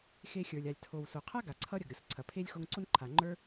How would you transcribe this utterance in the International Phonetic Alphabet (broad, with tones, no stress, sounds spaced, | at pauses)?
x e˧ xʲ ə˞˩ lʲ a˩ lʲ tʰ o˩ w s o˩ qʰ a˥ ɡ a˩ ǀʰ ʌ˥ ɾʲ ɐ˩ ɡ ɾʲ o˩ s ǀʰ ɐ˩ pʰ e˥ lʲ x o˧ ŋ ǀ o˥ n ǃʰ a˩ ŋ͡ǃ ə˞˥